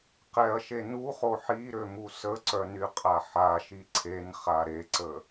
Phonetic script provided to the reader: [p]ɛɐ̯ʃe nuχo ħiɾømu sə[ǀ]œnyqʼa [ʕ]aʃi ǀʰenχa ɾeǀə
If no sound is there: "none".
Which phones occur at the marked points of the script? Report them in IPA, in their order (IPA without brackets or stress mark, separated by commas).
q, ǀ, ħ